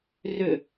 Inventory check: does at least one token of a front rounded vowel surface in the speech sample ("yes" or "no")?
yes